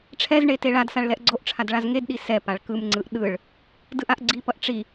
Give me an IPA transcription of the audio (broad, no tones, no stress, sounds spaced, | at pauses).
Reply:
ʈ͡ʂʰ ɛ z ɳ e t e ɭ a d s a ɭ l ɛ ʔ ɡ͡ǀ o ʔ ʈ͡ʂʰ a d ɭ a z ŋ e d ɗ i s ɛ p a ɭ k ɯ m ŋ͡ǀ ɯ ʔ ɗ ɯ ɭ | d ɯ ʔ a ʔ ɡ͡ǀ i p ʌ ʔ ʈ͡ʂ i